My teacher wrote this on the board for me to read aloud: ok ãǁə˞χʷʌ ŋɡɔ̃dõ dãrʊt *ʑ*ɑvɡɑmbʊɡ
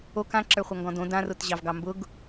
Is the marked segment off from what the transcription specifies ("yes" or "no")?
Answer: no